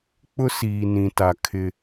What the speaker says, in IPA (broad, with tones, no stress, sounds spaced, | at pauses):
k͡p ʊ˦ s iː˨ n ĩ˨ t a˨ kʰ ɪ˦